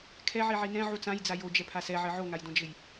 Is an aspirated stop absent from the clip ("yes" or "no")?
no